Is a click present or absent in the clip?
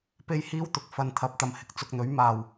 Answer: absent